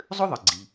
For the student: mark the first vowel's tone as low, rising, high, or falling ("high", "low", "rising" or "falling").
high